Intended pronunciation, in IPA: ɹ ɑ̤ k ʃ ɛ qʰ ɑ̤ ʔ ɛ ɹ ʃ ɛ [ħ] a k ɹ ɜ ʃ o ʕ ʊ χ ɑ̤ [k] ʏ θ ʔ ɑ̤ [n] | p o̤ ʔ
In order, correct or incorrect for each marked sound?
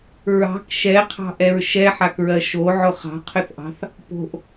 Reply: correct, incorrect, incorrect

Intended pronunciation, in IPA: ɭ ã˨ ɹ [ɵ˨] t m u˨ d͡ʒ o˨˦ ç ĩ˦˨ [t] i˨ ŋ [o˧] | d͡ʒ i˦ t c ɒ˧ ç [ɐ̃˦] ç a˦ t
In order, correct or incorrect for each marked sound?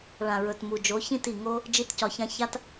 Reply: correct, correct, incorrect, incorrect

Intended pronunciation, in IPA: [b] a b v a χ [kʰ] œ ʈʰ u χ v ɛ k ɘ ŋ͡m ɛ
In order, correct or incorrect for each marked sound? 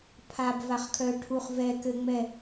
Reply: incorrect, correct

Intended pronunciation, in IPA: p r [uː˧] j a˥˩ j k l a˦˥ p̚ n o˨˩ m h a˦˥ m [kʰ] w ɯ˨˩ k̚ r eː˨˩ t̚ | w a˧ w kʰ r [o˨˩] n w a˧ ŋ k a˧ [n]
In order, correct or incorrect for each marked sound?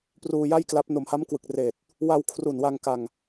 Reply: correct, incorrect, incorrect, incorrect

